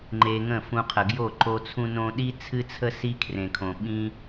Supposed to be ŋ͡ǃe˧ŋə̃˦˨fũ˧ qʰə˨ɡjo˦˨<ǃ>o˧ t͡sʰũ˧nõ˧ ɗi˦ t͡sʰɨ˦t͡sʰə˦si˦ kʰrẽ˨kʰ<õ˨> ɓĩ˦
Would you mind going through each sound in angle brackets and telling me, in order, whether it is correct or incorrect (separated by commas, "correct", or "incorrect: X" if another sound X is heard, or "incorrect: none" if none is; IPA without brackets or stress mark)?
correct, correct